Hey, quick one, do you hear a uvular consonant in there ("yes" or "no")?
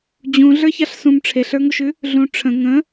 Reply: no